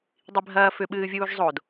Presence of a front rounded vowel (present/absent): present